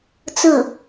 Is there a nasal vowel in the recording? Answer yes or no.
no